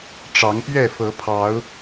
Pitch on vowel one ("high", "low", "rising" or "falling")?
rising